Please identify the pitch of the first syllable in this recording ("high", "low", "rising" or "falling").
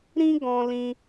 high